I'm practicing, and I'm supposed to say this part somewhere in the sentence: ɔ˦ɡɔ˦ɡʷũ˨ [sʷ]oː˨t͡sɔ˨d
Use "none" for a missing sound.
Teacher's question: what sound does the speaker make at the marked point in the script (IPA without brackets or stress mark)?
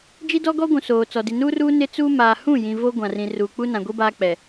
s